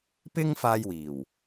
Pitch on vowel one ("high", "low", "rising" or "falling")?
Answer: high